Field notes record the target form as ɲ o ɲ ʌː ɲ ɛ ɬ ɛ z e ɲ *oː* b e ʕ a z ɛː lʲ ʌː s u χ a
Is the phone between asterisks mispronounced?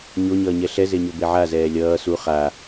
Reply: yes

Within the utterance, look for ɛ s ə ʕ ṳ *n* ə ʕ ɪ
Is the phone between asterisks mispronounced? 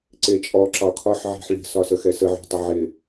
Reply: yes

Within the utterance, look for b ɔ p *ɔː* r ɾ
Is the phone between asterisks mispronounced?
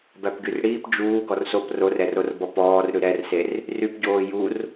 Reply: no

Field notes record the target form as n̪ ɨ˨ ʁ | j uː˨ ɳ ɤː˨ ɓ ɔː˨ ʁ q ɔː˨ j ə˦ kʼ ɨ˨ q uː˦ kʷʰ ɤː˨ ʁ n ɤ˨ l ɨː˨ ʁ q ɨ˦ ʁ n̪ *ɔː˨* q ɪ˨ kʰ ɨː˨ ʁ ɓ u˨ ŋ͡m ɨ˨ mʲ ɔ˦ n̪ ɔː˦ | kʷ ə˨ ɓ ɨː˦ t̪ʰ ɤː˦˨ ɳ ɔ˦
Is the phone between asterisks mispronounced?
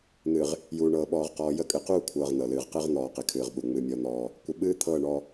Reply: no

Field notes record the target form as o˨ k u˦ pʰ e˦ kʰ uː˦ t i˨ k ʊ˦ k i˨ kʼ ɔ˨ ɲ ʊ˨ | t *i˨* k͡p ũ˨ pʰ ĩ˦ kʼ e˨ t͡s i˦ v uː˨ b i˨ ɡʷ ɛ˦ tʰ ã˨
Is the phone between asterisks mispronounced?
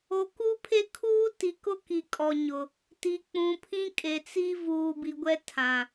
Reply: no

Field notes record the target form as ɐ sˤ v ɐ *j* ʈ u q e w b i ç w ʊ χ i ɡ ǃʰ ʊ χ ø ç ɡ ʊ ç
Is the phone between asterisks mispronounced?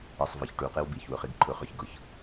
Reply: yes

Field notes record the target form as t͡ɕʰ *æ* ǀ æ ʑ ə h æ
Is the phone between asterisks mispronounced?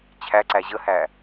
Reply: no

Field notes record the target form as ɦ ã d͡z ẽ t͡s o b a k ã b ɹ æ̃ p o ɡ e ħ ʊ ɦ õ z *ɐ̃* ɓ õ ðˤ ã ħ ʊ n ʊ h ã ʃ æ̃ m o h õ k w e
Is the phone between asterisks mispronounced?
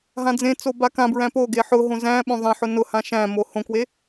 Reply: yes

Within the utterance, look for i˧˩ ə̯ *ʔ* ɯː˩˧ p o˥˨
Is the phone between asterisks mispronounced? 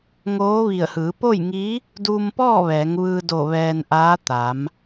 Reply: yes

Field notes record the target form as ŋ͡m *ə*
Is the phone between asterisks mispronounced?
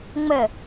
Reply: no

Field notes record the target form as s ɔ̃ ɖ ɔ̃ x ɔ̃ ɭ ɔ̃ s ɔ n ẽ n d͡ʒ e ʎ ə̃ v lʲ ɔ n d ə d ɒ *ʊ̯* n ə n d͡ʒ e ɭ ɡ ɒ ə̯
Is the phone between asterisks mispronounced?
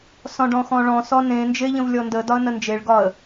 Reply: yes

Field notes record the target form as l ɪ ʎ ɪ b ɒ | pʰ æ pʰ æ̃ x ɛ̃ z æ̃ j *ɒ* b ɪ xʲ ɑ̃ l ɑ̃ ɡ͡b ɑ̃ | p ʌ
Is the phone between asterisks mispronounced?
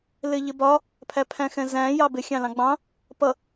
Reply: yes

